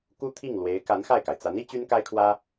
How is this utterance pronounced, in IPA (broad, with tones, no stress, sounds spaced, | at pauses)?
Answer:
k u˥ t̪ʰ i˥˩ ŋ l w e˧˥ ɪ̯ k a˧˥ n x a˥˩ ɪ̯ k a˩ ɪ̯ t͡s a˧˥ n i˥ t͡ɕ y˥ n k a˥ ɪ̯ kʰ w ä˥